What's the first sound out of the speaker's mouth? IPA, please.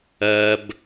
ɜ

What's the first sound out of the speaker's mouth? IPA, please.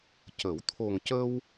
c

